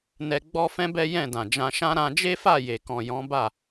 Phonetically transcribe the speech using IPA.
n ɛ˧ ɡ͡b ɔ˦ f ɛ̃˦ b ɛ˦ j ɛ̃˦˨ d ã˨ d͡ʒ ã˧ ʃ ã˦ ɾ ã˧ d͡ʒ e˦ f a˦˨ j e˨ k ɔ̃˨ j ɔ̃˨˦ b a˦˨

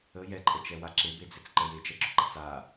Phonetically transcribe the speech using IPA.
ə j ɛ ǃʼ ə t͡ʃ ɛ w a ǁ e b e d͡z ɛ t͡s ǃ ə j e d͡ʒ ɛ ɡ͡ǁ ɵ ɡ͡ǃ a t͡s a

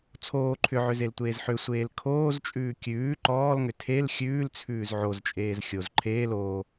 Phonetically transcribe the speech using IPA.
t͡sʰ oː ǃʰ ʏ ʕ ʏ z e l tʷ eː z ħ ʏ sʷ eː l kʰ oː z t͡ʃʼ ʉː kʲ ʉː ǃ ɔː l ŋ ʏ tʰ e l xʲ ʉː l t͡sʰ ʉː z ʕ o z t͡ʃʼ eː z xʲ o z ǃʰ eː l o

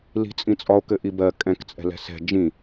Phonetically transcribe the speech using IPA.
l i̤ t͡sʼ ĩ t͡sʼ ɒ o̯ k ɘ ʔ i b ɜ kʼ ɛ̃ k t͡sʼ ɛ̤ l ɛ̤ s ɛ̤ d͡ʒ ĩ

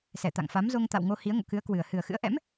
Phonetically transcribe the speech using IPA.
s ɛ˧˩ t̪ a̰˧˨ ŋ f a˨˦ m z o˧ ŋ t̪ a̰˧˨ w ŋ o˧ h i˨˦ ə̯ ŋ o̰˧˨ k ɨ˨˦ ə̯ k w ɨ˨˩ ə̯ h ɨ˨˩ ə̯ x ɨ̰˧˥ ə̯ ʔ ɛ̰˧˥ m

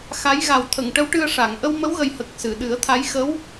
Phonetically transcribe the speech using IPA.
x a˧˥ j ɣ a˨˩ w t̪ʰ ə˨˩˨ ŋ ʈ ə˧˥ w ʈ ɨ˧ ə̯ ʂ a˨˩˨ ŋ ʔ ə˧ w m ə˧˥ w ɣ ə˨˩ j h ə˨˩ k̚ s ɨ˨˩˨ ɗ ɨ˨˩˦ ə̯ t̪ʰ a˧˥ j x ə˧˥ w

